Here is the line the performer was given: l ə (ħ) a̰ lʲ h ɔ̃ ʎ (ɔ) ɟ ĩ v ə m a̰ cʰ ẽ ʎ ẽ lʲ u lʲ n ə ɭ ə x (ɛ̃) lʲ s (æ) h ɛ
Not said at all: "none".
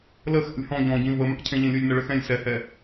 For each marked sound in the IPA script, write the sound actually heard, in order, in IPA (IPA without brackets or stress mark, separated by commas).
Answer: x, ɔ̃, ɛ̃, ɛ